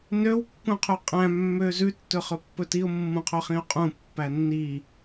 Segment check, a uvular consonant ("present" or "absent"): present